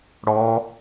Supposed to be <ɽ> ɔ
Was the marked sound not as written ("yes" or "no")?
no